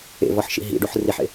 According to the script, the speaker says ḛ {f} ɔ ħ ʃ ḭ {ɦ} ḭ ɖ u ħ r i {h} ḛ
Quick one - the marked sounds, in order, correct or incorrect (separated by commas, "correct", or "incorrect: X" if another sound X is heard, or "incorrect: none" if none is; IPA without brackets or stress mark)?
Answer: incorrect: v, correct, incorrect: ħ